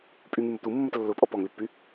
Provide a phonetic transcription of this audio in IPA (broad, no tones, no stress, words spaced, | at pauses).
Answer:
pʼyŋymʊ t̪umːət lːʊpʼɔ pɔŋlypːy